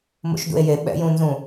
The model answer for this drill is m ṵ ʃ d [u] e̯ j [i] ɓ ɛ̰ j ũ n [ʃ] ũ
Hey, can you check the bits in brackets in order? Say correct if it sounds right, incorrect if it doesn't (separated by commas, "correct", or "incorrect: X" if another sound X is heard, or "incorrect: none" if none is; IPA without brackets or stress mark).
incorrect: ṵ, incorrect: e, incorrect: z